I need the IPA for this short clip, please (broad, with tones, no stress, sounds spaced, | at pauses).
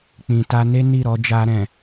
k͡p ĩ˨ t a˧ n e˦ n i˦˨ ɾ ɔ˧ d͡ʒ a˧ ɾ ɛ̃˨